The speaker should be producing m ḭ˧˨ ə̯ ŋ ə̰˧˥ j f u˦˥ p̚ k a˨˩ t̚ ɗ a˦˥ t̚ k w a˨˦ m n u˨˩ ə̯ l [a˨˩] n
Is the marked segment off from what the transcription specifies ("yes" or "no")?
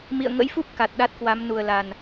no